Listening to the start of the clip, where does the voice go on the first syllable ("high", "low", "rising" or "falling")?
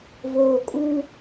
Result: low